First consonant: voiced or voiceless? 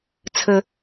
voiceless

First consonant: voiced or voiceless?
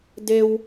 voiced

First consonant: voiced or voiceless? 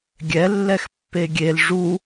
voiced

